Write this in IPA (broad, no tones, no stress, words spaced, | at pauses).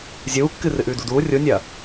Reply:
zʲuːkːɨ rɨʔʉːduduː rʲunʲɐː